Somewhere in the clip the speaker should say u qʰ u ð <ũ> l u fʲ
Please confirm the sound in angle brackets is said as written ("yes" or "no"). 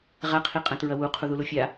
no